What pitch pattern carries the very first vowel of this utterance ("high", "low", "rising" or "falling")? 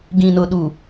low